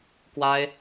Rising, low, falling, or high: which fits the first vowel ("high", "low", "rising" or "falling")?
high